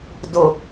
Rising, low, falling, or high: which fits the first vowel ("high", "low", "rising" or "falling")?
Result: low